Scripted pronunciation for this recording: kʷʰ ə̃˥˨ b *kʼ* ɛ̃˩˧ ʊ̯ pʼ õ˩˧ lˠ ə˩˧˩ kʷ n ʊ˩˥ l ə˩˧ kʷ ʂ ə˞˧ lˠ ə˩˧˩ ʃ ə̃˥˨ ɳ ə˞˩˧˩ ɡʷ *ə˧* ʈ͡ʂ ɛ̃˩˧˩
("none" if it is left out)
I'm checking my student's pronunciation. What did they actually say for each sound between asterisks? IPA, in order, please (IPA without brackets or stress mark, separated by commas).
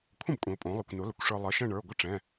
kʷʼ, ə˥˨